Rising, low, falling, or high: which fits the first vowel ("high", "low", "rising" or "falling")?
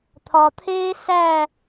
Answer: low